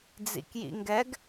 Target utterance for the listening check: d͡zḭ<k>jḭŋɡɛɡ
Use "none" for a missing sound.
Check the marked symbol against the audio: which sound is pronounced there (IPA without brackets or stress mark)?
k